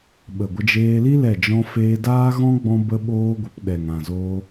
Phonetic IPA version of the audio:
ɓ ə˨ ɡʷ ə˧ d͡ʒ eː˧ l i˦ l ɛ˦˨ d͡ʒ ɔ̃˦ f eː˦ d aː˦ ɣ ɔ̃˦ ɡ͡b ɔ̃˦ b ə˦ ɓ oː˦ ɡʷ ə˧ p ɗ ɛ˨ ŋ ã˨ z oː˧

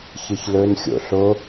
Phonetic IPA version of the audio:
ç ɨ ç l ɵ n xʲ o̰ ɬ o

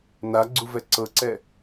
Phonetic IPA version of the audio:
n a ɡ͡ǀ u v ɛ ǀ ɤ ǀ ɛ

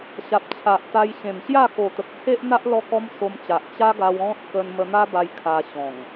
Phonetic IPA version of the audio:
ɕ a˨ p̚ t͡ɕʰ a˨ ʔ t̪ a˧ j ɕ ẽ˨˩ m ɕ j a˥˧ k o˨˩ t̪ ə˨ k̚ t͡sʰ e˦ ʔ n̪ a˦ ʔ l ɔ˦ k ɔ˦ m s o˧ m t͡ɕ a˨ ʔ t͡ɕ a˦ ɡ a˧ w ɔ̃˦ t̚ k ə˧ n m ə˧ n̪ a˦ b a˧ j kʰ a˧ ɕ ɔ̃˨˩ ŋ

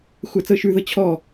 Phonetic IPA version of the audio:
xʷ æ t͡s ɤ ʃ ʉ ð ɤ t͡ɕʰ ɔ

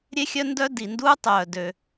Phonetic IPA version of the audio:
ɾʲ e˥ xʲ œ˥ n d œ˥ d i˩ n d uː˥ tˤ œː˩ d ø˩

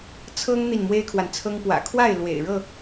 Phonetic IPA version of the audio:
t͡sʰ ɤ˦ ŋ n̪ i˨ n m w e˦ ɪ̯ kʰ w a˨ n t͡sʰ ɤ˦ ŋ p w ä̰˨˩ kʰ w a˥˨ ɪ̯ l w ḛ˨˩ ɪ̯ ɻ ɤ˥˨

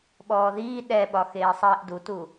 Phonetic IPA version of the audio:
ɓ ɔː ð iː ɗ ɛ ɓ ɒ x eː sˤ iː ʔ d u t u

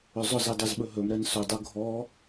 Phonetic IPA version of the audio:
ɵ zˤ ʊ z i dˤ i z ɓ ɵ ɦ ɵ m ɾ ɛ n s ɵ dˤ u ɡʱ ɔ

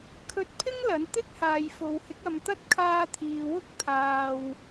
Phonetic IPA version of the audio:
kʰ ɵ˧ t̚ pʰ ɪ˥ ŋ l ɐ˨˥ n t̪ ɪ˥ k̚ h aː˨ j f o˨ w h ɪ˨˥ k̚ ɐ˧ m t̪ ɐ˥ t̚ kʰ aː˧ t̪ʰ iː˨ w ʊ˥ k̚ t̪ʰ aː˧ w

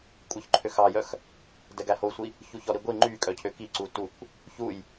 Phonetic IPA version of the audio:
kʷʼ œ ç ǃʰ ø x ɑ j œ x | d ɛ ɡ æ h o sʷ i | ç u ç ɔ ɾ i ɡʷ i ŋ͡ǃ y kʼ œ cʰ ø k i ǀ u t u kʷ | ç u j

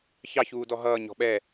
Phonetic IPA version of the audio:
ç ɑ ç uː d ɔ ɦ ʌː ɲ ɔ̤ ɓ ɛ

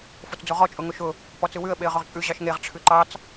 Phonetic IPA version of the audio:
f o t͡s d͡z o ʁ ɔ t͡ʃʼ ʊ ŋ ʊ ʃ ʊ | p ɔ t͡s ɯ w ʉ ə̯ ɓ e ə̯ ʁ ʊ ʁ t͡ʃʼ ʉ ʑ ɑ ʃ ŋ e ʁ ʈ͡ʂʰ ʉ ǃ ɑ t͡s

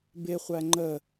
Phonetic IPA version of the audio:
b ɪ χʷ æ ŋ͡ǃ ə

